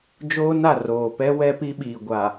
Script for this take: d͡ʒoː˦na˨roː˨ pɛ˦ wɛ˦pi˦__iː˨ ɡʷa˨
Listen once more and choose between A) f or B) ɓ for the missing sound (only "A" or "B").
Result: B